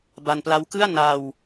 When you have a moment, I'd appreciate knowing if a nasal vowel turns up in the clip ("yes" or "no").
no